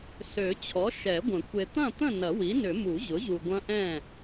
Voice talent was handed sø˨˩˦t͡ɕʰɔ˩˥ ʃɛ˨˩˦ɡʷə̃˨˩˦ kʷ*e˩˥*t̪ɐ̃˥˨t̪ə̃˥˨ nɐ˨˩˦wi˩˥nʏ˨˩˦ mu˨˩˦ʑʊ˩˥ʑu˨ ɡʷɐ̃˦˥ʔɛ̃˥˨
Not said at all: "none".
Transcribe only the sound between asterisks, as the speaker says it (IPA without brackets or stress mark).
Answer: e˨